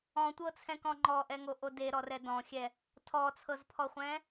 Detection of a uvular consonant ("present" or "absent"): present